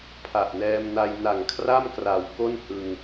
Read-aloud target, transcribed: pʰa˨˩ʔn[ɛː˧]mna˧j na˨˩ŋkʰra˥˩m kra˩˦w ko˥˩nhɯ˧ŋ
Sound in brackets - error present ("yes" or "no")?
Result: no